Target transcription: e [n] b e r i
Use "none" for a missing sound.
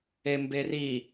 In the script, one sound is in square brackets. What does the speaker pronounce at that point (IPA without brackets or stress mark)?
m